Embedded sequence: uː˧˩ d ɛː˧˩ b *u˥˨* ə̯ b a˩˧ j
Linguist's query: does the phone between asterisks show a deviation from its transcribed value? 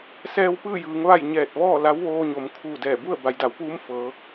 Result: no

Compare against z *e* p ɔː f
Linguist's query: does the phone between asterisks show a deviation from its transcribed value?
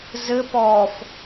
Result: yes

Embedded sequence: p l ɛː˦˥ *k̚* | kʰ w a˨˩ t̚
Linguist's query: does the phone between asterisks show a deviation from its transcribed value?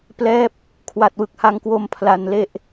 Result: yes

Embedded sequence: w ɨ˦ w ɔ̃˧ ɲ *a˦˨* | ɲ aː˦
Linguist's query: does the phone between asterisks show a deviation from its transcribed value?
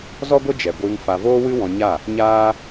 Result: no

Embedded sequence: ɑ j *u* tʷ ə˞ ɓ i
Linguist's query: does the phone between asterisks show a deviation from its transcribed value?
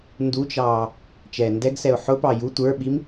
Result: no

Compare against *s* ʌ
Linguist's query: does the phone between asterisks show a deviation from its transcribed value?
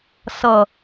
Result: no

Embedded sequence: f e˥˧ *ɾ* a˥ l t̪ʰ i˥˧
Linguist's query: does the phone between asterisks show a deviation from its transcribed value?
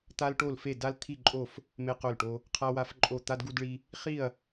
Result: yes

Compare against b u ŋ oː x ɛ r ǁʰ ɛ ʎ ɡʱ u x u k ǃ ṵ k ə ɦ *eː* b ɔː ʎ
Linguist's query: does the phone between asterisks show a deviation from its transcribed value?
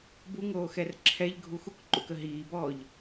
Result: yes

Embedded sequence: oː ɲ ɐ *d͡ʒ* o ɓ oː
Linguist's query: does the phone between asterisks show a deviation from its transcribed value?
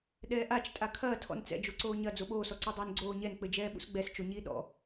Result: yes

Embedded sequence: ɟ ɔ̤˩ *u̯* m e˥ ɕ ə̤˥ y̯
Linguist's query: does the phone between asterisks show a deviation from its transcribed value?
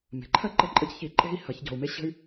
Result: no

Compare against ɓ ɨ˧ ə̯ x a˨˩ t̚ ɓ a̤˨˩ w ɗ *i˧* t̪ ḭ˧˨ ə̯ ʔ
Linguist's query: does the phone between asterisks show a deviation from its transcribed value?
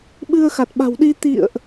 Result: no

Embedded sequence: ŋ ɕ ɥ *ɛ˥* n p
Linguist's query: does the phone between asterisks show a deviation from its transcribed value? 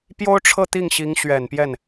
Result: yes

